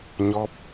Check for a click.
absent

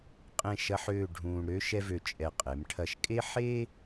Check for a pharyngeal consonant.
present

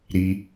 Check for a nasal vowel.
absent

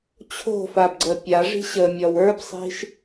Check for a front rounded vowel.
absent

